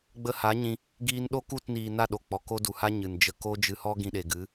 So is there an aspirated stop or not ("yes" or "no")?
no